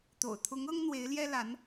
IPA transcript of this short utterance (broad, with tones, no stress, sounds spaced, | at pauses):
t̪ o̰˨˩ ʊ̯ t̪ʰ ʊ˧˥ ŋ ɤ˥ ŋ n̪ w e˧˥ ɪ̯ l j ɛ˥ l a˧˥ n